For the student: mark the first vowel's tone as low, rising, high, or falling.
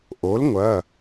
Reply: rising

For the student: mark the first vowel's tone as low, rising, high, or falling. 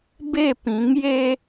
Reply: falling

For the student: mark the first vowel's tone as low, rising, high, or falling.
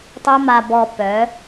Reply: high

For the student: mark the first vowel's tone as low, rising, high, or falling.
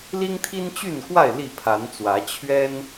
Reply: high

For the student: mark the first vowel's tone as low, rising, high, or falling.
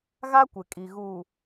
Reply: high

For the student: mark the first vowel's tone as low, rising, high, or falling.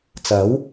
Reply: rising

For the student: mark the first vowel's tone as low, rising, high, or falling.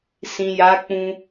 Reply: low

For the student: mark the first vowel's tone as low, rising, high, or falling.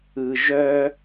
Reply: low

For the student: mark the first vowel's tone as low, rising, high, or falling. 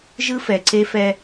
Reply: high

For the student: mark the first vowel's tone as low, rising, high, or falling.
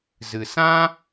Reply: low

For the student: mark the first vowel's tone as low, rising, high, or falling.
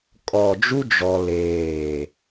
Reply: low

